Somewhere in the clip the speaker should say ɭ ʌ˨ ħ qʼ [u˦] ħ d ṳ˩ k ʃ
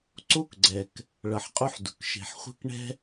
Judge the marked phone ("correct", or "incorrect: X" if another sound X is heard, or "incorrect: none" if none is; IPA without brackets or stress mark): correct